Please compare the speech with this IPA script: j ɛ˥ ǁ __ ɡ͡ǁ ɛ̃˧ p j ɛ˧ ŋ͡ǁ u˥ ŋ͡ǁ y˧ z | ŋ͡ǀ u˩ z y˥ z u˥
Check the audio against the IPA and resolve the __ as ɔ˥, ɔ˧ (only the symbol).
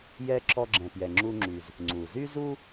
ɔ˥